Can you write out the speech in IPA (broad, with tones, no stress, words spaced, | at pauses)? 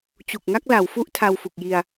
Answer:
t͡ɕu˨˩k̚ŋa˥˩k̚la˩˦w fu˦˥ʔ tʰa˧wfu˨˩k̚ji˧a̯